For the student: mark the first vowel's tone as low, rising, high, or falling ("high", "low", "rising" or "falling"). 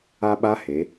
high